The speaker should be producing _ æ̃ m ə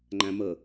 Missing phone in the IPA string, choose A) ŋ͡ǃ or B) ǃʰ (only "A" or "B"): A